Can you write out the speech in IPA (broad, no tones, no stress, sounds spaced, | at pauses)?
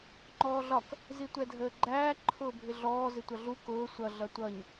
ŋ͡ǃ ɔː ɮ ɒ k | z i tʷ ɛ dʱ əː ɡ͡ǃ æː ǃʰ ʊː bʱ ɪ ɮ ɔː z ɪ tʷ ʌ ɮ u k ʊː sʷ ʌ ɮ ʌ tʷ ʌ ɲ